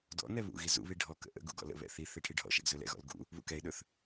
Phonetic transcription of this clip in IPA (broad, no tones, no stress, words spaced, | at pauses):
dɔ̰nɛ βṵɣi zṵβi ɖʱɔ kə̰ʔə̰ɡṵ ɡɔ̰lə̰βɛ̰ θiθe ʈʰiɖʱɔ̰ʃɛ̰ɡ zɵlɛ̰ɣɔ̰l ɡṵ | βṵkɛɪ̯ɗɵθ